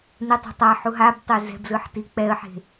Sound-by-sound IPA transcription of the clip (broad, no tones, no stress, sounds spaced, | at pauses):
n i tˤ ɛ̤ tˤ a ħ u ɦ a b tˤ e z ɛ̤ b z ɯ ħ t i k͡p ɛ ə̯ ħ e̤